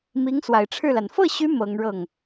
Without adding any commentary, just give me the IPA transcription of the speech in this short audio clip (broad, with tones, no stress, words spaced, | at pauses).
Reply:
mi˧˥ŋswa˨˩ɪ̯ʈ͡ʂʰɻ̩˥˩la˩n fɤ˥˩ɕy˧˥ mɤ˧˥ŋɻɤ˥˩ŋ